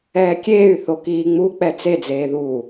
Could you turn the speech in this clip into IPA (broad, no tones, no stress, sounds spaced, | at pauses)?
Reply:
ɛː kʲ eː y̯ θ o k iː ŋ͡m u k͡p ɛ t͡s e d͡z eː ð uː